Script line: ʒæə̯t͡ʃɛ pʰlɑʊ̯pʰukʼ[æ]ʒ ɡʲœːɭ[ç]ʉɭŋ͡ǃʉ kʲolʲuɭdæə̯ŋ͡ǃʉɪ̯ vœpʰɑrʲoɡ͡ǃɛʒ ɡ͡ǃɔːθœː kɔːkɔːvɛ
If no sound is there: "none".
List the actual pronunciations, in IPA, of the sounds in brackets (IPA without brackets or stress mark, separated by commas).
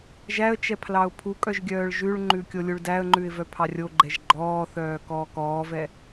œ, ʒ